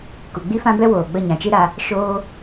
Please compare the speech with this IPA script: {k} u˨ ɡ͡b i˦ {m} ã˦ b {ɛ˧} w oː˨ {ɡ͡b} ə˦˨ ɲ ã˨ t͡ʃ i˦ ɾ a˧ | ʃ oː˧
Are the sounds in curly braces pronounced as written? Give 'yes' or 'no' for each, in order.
yes, no, no, yes

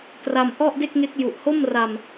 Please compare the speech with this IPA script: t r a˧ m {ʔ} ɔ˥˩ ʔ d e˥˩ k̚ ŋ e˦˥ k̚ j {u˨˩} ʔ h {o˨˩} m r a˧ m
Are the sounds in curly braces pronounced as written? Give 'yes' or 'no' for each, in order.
yes, yes, no

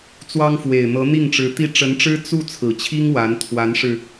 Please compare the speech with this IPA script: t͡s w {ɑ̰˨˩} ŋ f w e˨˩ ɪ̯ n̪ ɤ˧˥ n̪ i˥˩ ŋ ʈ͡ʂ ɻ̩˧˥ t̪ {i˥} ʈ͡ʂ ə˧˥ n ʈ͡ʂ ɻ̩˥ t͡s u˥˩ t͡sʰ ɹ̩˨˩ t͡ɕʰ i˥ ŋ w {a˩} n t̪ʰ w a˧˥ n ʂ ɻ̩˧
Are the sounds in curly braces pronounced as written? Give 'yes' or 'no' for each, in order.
no, yes, no

